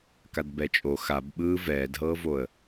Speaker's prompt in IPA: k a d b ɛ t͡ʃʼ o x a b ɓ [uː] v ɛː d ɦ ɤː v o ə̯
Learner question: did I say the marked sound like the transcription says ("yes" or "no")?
no